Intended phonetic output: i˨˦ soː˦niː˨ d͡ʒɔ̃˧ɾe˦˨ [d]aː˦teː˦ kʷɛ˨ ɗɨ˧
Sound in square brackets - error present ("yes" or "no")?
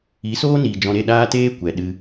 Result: yes